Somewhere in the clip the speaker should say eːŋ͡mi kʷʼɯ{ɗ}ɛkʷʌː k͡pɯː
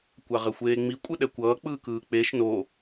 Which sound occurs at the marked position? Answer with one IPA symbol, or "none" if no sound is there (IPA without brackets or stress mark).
ɗ